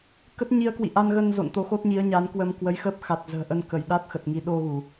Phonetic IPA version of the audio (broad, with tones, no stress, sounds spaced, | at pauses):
k ə˦˥ t̚ ɲ i˧ ə̯ k w ḭ˧˨ ʔ a˧ n ɣ ə˧ n z o̰˧˨ n t̪ o˨˦ x o˦˥ t̚ ɲ i˨˦ ə̯ ɲ a˨˦ n k w ə˧ m k w ə˨˦ j x əː˦˥ p̚ x a˨˩ t̚ z ə̤ː˨˩ ʔ ə˧ n k ə˧˩ j ɗ a˦˥ t̚ x ə˨˩ t̚ ŋ i˨˦ ɗ o˧ ɣ u˧˩˨